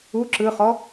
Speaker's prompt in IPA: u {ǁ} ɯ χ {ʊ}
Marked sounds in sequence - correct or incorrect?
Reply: correct, incorrect

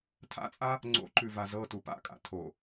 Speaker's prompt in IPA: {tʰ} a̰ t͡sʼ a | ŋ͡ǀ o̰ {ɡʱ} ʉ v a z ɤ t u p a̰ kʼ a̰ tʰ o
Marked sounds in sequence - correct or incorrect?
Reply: correct, incorrect

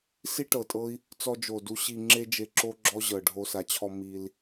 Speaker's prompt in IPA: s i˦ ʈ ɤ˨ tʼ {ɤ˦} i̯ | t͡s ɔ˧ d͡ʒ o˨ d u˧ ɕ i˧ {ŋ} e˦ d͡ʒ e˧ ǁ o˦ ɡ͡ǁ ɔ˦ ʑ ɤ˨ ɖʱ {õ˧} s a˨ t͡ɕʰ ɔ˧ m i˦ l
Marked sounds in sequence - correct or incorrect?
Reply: correct, incorrect, incorrect

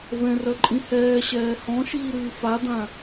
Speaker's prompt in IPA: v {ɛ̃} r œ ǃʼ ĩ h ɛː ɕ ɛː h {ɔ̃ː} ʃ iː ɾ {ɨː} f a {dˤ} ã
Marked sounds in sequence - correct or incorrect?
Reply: correct, incorrect, correct, incorrect

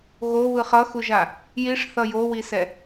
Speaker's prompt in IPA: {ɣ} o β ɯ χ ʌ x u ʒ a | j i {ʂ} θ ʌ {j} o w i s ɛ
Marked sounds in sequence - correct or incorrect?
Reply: correct, correct, correct

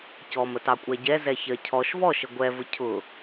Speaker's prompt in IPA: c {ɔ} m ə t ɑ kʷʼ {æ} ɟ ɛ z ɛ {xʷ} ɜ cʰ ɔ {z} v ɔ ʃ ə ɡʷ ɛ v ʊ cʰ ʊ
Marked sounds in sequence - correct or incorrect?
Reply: correct, correct, incorrect, incorrect

